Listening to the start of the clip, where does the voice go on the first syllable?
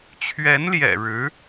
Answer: rising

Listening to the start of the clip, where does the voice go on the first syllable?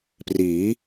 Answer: rising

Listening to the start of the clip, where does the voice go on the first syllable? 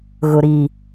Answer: low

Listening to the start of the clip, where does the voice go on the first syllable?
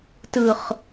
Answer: low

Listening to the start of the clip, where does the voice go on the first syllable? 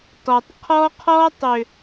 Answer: low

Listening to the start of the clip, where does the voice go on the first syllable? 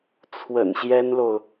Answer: low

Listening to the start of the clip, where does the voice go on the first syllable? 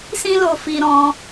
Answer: high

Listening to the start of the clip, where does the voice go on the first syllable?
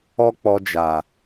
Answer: high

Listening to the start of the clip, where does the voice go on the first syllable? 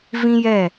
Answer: high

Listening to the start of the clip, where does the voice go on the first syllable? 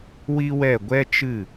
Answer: high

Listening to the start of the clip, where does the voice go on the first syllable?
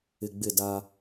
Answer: low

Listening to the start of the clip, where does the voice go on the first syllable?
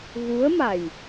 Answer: rising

